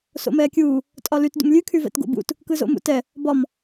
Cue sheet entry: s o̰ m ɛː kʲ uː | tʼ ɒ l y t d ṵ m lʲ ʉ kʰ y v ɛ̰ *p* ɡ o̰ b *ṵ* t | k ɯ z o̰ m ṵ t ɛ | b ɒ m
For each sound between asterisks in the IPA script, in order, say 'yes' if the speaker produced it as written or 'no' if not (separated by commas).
no, yes